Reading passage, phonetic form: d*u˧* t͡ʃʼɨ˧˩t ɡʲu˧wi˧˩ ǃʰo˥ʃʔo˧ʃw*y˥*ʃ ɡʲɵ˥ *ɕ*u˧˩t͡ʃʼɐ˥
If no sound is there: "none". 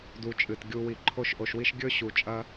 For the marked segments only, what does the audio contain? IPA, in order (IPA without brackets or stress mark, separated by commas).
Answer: u˧, i˥, ɕ